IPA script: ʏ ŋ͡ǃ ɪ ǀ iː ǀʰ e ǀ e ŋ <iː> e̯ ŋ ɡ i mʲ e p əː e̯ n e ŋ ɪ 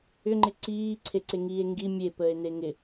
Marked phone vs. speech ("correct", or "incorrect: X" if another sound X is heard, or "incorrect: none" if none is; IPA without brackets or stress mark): correct